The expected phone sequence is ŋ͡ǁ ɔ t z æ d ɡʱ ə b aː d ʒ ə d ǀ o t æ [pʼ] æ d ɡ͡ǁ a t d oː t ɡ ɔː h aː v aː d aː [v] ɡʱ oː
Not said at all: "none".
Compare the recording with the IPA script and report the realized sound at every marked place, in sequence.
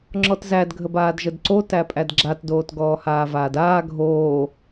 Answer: pʼ, none

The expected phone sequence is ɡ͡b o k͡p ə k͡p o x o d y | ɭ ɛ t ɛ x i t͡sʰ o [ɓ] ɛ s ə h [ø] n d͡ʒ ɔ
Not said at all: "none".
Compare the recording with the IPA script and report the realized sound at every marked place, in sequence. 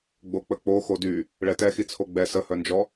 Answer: ɡ͡b, œ

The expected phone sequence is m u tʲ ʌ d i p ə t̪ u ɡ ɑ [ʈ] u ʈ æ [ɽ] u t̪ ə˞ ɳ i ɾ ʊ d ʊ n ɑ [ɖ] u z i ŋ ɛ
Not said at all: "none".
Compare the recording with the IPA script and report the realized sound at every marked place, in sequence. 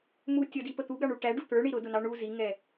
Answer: ɳ, ɖ, ɳ

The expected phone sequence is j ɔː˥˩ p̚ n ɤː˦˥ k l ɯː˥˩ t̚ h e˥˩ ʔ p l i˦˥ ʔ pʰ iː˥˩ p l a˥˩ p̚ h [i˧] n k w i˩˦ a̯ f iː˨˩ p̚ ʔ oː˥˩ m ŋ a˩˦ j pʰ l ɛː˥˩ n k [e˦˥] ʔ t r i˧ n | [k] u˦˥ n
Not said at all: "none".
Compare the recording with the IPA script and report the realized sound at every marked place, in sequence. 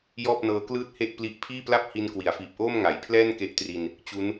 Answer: i˧, e˦˥, t͡ɕ

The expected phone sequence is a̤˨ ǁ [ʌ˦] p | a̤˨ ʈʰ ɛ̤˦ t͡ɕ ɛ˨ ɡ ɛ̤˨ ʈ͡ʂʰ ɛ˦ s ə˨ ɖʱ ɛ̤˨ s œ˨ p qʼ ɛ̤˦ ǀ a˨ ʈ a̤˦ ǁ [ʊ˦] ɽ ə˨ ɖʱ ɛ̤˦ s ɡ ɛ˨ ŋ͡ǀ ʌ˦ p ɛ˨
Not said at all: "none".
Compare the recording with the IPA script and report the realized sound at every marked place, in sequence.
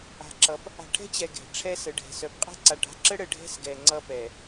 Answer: ʌ˨˦, ə˦

